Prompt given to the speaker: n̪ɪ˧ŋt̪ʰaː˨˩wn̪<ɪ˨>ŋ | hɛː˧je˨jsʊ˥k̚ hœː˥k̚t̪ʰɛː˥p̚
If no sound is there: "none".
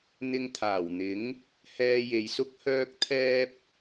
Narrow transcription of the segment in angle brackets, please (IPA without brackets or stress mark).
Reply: ɪ˨˥